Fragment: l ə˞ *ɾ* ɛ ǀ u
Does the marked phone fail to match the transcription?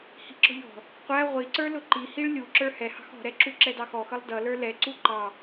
yes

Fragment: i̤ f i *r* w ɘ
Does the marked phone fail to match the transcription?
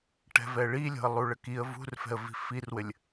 no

